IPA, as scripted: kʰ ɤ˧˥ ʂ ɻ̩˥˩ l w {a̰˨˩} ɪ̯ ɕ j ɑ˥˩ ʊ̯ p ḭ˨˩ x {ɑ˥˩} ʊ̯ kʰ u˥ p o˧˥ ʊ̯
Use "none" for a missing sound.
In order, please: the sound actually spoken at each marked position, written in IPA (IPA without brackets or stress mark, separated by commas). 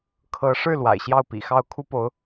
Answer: a̰˨˩, ɑ˥˩